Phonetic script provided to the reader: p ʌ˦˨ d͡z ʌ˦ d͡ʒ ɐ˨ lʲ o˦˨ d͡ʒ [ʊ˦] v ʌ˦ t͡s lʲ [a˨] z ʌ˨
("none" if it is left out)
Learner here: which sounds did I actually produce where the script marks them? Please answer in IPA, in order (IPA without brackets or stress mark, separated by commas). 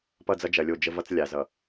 ə˦, a˨